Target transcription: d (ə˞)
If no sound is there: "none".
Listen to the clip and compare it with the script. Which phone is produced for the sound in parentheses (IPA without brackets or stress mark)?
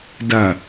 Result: ɐ